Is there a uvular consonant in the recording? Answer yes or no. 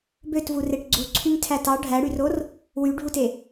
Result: no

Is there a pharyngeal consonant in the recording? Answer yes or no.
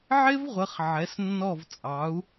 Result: yes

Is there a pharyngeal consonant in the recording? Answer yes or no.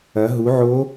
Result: yes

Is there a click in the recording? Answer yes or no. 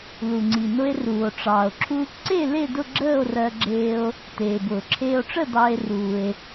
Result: yes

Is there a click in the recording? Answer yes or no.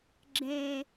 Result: yes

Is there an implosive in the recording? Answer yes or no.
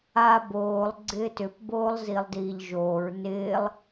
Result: no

